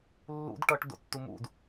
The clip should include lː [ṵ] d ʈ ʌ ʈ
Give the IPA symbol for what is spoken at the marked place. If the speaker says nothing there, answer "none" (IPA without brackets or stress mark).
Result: ṵ